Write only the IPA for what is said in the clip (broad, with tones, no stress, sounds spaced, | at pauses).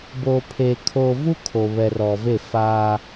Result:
b oː˨ pʰ eː˨ kʰ oː˨ v u˦ kʰ o˨ β ɛ˨ r ɔ˨ v e˦˨ f a˦